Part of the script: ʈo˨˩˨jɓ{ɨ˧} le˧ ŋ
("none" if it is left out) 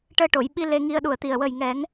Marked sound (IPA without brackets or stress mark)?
i˧